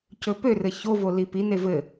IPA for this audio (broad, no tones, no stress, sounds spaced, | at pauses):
c ɵ p ø r ɘ ç o v o l i p i n e v ɘ